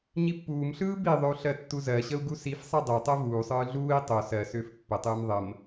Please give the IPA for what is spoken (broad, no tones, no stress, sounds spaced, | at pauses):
ɲ i pː uː m ɬ ɯː b i ðˤ ʏ u̯ ɬ ɜ tː u z ɜ ɕ ə u̯ ɡ u s i f sˤ i dˤ ɛ tˤ ɛ v uː sˤ ɯː ɮ uː i̯ tˤ o s ɜ s ʏː f pː ə tˤ ɯː m ðˤ ə m